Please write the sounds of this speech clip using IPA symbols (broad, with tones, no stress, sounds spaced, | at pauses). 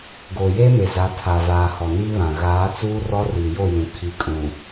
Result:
ɡ oː˨ j eː˦ m e˨ z a˨˦ tʰ a˨ v aː˨ h ɔ˨ n iː˦ β ã˨ ɣ aː˨˦ t͡s uː˦ r ɔ˦ r iː˨ j o˦˨ j ũ˨ kʰ i˨ kʼ ũ˨